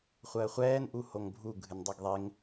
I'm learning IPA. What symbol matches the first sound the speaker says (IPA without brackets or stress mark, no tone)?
χʷ